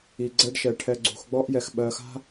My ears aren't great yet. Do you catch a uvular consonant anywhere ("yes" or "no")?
no